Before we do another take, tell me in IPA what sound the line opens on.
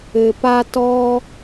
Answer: ɘ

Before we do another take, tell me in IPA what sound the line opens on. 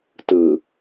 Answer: t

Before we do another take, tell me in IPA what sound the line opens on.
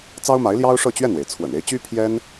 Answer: t͡s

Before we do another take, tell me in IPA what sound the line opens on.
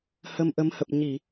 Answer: h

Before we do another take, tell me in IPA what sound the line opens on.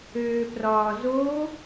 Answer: øː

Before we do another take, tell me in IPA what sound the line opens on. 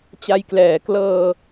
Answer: t͡ɕ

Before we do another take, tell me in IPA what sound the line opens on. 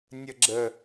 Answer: nʲ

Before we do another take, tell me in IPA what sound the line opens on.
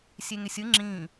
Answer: sʲ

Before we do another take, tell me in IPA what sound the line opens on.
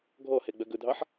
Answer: ɡʱ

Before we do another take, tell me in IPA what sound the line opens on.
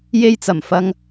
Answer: j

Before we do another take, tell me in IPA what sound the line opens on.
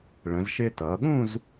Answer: ɭ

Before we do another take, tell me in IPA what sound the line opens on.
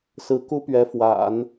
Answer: s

